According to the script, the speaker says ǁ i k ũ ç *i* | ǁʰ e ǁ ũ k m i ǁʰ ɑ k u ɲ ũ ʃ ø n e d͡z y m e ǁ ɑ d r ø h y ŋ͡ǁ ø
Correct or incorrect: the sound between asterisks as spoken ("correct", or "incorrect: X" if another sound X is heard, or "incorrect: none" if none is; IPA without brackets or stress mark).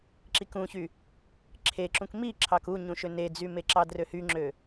incorrect: y